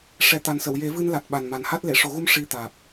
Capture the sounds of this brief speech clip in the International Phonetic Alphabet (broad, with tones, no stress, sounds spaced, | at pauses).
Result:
ʂ ɛ˨˩ t̪ a˨˩ n s ə˨˩˨ w j e˨˩˦ v ɨ˧ n l a˨˩ t̚ ɓ a˨˩ n m a˨˩ n h a˦˥ t̚ l e˨˩˨ ʂ o˨˩˦ ɣ u˧˥ m ʂ i˧ t̪ aː˨˩ p̚